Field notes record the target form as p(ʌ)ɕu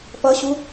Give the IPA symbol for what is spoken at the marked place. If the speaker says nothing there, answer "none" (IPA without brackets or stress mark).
ʌ